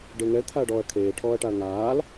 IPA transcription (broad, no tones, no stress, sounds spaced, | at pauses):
ɖ ɪː ŋ ɛ l t̪ʰ a ɐ̯ ɖ ɔː ɐ̯ kʰ eː ʈʰ ɔː ɐ̯ ʈ a ɐ̯ ŋ aː l